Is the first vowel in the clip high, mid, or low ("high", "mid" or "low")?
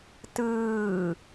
high